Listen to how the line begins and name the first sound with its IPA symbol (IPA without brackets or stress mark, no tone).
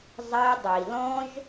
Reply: zˤ